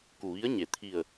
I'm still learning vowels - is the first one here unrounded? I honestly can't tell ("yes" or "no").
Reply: no